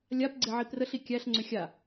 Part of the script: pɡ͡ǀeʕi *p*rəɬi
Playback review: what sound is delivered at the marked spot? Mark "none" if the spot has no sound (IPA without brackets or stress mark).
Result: p